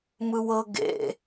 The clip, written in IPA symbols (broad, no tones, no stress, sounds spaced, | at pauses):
m ɯ w ɤ ɡ ḛ